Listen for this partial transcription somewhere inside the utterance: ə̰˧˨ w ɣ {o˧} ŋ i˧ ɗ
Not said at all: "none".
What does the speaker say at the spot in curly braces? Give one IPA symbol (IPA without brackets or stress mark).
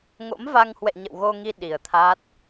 o˧